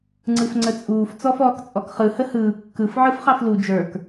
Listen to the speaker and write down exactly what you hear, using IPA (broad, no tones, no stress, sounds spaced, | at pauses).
ŋ͡ǀ ɯ f ŋ͡ǀ ə t͡sʼ uː f t͡s ɔ f ɔː k t͡sʼ ɔ k χ ɯ h ə h ɯː kː ɯ f ʕ ɯ f χ ɑ f l u d͡ʒ ə˞ k